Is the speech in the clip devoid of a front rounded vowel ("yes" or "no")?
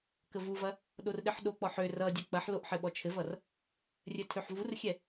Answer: no